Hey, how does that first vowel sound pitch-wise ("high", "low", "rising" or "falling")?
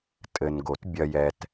low